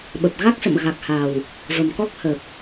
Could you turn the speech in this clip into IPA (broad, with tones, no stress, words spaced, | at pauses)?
ɓə˨˩p̚ɣa˦˥k̚sə̰˧˨m ɣa˨˩k̚ha˨˩w | və˨˩mkɔ˦˥k̚ hə˨˩p̚